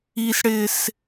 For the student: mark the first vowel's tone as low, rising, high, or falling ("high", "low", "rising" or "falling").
low